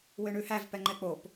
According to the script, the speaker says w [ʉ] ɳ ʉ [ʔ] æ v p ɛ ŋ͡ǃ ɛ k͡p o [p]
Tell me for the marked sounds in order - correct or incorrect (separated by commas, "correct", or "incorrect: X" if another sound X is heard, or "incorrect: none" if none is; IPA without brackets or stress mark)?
incorrect: ø, incorrect: h, correct